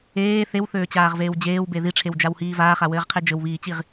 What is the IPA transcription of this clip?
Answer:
eː θ e w θ øː t͡ɕ aː ʁ v eː w d͡ʑ eː w b e ð i ʈ͡ʂʰ e w d͡ʒ a w h iː v aː χ a w ɘː ʁ qʰ e d͡ʒ ɘ w β iː t͡ɕ i ʁ

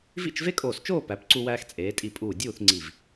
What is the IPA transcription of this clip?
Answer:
v ḭ˥˧ t͡ʃ v e˥ kʼ oː˧˩ s t͡ʃ oː˥˧ p æ˩˧ p ǀ u˧ w æː˧ x t͡sʼ eː˩˧ tʼ i˧˩ pʼ uː˧˩ dʲ uː˥˧ θ ŋ͡ǀ i˧˩ v

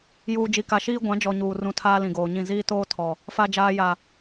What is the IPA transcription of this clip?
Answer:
j uː˨ d͡ʒ i˨ k a˨ ʃ iː˦ ɡʷ ã˨˦ d͡ʒ ɔ˨ ɲ uː˨ r ũ˨ tʰ aː˦ l ĩ˨ ɡ oː˨ ɲ ĩ˦˨ z iː˦ t oː˦ tʰ ɔ˨ | f a˨ d͡ʒ aː˨ j a˨

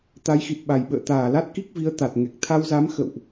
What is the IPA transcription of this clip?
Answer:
t̪ a˨˦ j x i˨˩ t̚ ɓ a˨˩ j ɓ ə̰ː˧˨ t̪ aː˧˩ l a˦˥ t̚ k i˦˥ k̚ v i˨˦ ə̯ t̪ a˨˩ t̚ ŋ ɛ˨˩ k̚ t̪ʰ a˧ w z a˨˦ m x ə̰˧˨ w ʔ

